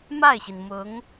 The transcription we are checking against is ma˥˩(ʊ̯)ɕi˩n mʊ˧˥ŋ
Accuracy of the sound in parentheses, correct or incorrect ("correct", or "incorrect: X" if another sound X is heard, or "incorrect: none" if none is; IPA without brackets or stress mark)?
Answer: incorrect: ɪ̯